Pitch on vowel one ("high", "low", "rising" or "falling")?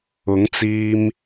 rising